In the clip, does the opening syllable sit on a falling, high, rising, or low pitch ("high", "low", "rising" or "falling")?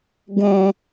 low